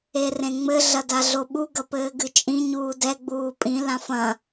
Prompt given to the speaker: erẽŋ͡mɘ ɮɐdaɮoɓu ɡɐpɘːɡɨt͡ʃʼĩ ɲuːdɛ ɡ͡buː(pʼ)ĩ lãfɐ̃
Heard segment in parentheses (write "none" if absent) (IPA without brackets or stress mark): pʼ